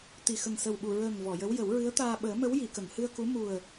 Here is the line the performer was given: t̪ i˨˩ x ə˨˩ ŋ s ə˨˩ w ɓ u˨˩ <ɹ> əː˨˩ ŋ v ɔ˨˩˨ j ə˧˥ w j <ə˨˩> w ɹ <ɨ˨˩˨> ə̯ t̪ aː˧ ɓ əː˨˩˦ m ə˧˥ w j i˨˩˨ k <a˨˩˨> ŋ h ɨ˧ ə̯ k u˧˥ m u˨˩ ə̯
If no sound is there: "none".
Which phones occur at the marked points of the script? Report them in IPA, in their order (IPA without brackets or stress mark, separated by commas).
ɹ, ə˨˩˦, ɨ˧˥, ə˨˩˨